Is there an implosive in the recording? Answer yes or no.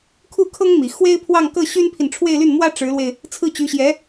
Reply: no